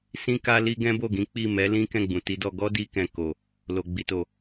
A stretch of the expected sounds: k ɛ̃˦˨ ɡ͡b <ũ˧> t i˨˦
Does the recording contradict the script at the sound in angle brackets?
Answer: yes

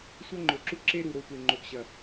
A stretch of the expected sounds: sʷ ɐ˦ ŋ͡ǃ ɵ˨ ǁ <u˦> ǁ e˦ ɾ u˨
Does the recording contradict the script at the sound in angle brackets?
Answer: no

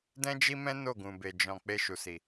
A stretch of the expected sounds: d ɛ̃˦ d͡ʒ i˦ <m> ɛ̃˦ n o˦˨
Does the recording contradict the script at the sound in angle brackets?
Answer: no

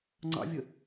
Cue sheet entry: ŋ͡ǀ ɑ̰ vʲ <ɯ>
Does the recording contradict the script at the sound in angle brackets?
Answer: yes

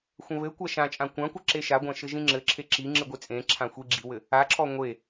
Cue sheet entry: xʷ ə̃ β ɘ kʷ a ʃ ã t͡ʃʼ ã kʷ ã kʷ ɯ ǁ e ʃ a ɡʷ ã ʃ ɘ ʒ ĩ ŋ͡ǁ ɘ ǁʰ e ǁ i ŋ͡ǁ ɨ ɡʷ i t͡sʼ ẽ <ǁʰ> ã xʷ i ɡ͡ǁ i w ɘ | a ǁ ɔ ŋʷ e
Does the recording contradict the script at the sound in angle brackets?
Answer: no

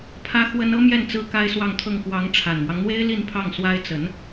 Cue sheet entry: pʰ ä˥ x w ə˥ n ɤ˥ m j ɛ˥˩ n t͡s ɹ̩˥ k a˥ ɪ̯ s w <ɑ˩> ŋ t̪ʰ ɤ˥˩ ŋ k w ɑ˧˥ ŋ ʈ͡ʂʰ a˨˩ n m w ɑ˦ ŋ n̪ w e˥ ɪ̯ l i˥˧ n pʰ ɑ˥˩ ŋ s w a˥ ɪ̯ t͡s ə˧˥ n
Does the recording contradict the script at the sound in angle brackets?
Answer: yes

